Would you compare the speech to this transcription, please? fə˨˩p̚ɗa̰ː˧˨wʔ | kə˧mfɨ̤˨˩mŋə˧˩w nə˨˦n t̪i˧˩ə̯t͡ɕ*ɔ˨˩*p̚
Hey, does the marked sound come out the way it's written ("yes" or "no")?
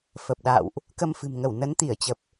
no